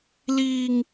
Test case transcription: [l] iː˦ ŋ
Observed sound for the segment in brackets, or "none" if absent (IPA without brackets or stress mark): l